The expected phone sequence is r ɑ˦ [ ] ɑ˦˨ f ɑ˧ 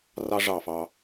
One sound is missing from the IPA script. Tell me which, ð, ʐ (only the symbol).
ʐ